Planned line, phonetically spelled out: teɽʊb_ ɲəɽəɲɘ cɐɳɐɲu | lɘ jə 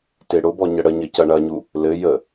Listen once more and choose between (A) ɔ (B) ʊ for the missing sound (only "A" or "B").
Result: A